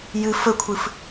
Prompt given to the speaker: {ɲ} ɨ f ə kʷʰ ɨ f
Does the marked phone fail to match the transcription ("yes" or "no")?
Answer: yes